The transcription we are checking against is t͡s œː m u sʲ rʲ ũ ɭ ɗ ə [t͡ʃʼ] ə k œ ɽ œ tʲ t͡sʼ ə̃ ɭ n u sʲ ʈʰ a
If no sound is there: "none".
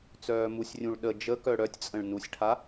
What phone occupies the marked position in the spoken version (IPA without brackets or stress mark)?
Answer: d͡ʒ